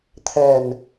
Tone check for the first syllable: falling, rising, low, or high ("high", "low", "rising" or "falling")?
low